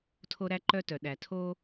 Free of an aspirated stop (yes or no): no